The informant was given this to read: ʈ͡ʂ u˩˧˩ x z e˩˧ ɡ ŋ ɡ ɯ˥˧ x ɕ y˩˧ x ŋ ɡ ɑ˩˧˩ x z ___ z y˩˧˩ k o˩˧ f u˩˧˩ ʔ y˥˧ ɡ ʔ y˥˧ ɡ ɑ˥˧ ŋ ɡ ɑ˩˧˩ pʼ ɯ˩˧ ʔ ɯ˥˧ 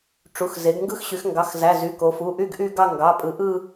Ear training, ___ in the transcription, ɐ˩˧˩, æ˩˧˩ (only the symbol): æ˩˧˩